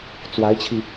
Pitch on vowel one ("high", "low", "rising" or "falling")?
rising